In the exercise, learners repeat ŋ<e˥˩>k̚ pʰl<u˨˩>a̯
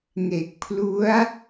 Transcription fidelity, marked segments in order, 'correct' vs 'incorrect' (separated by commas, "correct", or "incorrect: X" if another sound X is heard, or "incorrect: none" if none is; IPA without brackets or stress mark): incorrect: e˨˩, incorrect: u˦˥